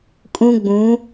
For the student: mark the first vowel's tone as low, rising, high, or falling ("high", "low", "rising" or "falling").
high